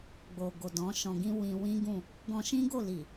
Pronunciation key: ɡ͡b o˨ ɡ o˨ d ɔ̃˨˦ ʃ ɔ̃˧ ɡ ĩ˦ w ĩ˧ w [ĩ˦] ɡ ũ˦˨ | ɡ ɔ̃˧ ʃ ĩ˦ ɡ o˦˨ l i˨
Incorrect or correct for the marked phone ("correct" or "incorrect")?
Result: correct